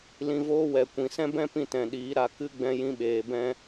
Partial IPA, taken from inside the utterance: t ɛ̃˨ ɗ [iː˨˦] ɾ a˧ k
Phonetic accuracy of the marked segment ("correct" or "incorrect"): correct